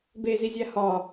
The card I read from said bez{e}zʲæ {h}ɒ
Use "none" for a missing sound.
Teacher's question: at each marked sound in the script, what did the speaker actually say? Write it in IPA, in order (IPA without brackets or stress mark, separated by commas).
i, h